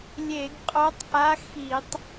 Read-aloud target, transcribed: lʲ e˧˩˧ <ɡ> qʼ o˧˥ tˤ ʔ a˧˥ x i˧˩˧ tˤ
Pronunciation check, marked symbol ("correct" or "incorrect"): correct